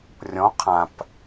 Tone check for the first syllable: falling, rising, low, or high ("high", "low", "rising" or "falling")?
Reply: rising